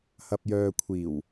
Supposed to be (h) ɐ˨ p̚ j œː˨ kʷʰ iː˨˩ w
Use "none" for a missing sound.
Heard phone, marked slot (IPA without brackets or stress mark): h